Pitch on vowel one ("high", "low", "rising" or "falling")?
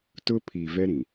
high